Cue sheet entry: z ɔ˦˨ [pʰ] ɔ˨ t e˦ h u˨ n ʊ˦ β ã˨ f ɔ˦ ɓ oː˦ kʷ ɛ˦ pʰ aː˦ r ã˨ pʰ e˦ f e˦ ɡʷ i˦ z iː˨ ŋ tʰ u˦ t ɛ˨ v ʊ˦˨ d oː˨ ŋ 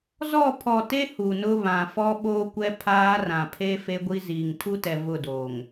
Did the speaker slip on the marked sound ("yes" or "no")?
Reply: no